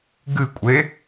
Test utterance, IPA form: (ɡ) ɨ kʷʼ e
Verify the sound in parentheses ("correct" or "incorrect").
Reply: correct